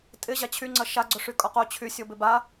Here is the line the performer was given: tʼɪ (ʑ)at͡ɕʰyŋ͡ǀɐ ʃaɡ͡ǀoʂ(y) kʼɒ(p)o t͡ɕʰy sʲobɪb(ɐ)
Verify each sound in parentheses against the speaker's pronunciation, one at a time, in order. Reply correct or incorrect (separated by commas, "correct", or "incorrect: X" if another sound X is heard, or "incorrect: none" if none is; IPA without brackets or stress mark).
correct, correct, incorrect: q, incorrect: a